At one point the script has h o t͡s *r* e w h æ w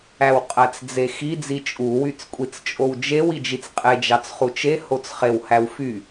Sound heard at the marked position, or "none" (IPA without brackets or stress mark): χ